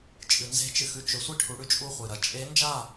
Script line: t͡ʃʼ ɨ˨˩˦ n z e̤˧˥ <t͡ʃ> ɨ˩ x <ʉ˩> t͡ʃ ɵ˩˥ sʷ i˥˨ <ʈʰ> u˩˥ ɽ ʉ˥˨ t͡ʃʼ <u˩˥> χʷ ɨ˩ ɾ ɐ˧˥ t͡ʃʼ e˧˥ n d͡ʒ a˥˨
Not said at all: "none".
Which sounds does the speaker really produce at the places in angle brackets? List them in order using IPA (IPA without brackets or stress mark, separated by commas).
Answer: t͡ʃ, ʉ˥˨, ʈʰ, u˥˨